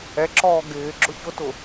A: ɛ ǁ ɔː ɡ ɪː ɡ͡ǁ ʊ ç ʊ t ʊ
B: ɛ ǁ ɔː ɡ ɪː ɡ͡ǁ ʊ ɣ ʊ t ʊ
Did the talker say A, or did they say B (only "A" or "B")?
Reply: A